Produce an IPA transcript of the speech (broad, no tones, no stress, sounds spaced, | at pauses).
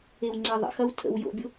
e w ŋ͡ǀ e ðˤ ə̰ x ɐ w tʰ ə̰ w j o̰ bʲ ʊ